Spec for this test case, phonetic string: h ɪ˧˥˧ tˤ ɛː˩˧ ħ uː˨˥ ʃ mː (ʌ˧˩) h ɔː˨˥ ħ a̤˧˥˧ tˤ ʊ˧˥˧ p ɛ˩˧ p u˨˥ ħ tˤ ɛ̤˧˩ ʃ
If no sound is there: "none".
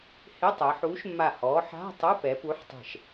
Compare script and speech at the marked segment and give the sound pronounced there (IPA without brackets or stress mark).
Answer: a˧˩